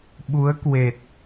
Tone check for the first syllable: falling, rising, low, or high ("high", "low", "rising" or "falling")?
rising